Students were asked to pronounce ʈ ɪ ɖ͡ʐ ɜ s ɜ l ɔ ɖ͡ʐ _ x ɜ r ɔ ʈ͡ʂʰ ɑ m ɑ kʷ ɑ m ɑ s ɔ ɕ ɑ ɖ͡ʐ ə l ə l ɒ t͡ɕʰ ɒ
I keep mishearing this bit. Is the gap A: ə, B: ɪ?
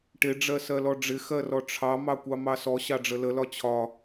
B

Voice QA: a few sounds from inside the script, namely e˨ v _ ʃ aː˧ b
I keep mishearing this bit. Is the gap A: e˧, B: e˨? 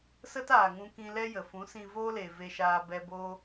A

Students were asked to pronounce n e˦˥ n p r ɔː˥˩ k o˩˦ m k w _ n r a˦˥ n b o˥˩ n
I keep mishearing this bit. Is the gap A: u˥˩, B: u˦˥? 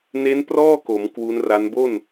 B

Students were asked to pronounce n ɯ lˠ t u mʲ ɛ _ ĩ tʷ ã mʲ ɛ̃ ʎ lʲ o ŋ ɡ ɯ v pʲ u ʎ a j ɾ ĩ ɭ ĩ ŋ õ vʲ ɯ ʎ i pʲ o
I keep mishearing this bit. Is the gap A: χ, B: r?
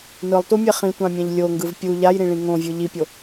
A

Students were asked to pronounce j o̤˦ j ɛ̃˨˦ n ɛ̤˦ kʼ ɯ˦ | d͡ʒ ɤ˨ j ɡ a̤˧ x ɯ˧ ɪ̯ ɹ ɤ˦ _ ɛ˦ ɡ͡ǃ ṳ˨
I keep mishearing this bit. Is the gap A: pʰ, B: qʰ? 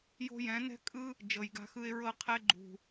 B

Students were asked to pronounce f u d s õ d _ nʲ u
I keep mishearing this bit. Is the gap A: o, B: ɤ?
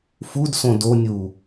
A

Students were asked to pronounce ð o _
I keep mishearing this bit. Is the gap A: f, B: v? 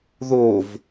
B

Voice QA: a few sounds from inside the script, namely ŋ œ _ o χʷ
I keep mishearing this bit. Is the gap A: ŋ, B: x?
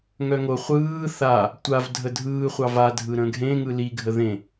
A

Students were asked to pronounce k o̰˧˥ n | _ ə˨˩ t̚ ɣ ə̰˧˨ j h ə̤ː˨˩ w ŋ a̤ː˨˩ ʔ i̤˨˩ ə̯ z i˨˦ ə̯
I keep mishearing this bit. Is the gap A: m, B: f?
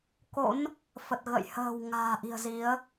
B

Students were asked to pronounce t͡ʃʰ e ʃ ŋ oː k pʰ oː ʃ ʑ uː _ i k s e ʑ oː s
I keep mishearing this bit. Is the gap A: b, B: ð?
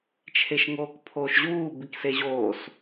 A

